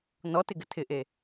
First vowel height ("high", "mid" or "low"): mid